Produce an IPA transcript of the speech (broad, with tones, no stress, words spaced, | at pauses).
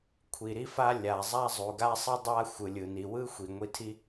kʷʰi˩ɾi˥fa˥ lʲa˩ zˤa˥zˤu˩ɡa˥sˤɯ˥ dˤa˥ xʷɯ˩lʲɯ˩ni˩wɯ˥ xʷi˩ŋʷi˧tʰi˥